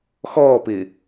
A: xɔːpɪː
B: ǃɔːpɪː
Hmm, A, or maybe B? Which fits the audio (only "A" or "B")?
A